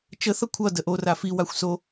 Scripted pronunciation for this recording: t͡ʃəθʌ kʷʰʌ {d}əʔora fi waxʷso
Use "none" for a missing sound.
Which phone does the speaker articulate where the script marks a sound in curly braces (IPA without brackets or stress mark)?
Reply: d